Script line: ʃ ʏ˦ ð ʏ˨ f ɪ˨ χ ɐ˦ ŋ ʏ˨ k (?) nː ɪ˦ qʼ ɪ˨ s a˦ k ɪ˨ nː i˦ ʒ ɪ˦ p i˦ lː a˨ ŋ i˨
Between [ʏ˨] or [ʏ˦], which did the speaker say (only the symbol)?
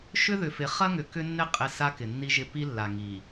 ʏ˦